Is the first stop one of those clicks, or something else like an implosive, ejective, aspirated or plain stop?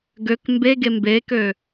plain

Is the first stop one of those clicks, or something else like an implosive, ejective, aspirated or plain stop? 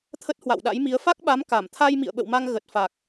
aspirated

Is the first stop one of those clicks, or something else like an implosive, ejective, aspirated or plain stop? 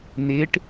plain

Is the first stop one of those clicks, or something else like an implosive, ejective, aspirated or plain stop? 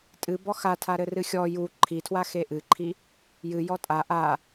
ejective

